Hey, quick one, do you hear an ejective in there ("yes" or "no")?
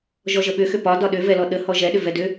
no